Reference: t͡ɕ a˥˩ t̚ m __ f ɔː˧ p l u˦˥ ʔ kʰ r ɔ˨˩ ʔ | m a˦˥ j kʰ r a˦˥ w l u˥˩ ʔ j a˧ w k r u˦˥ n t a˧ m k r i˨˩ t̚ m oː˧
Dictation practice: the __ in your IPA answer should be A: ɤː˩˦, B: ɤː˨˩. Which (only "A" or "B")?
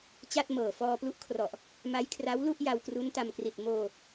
B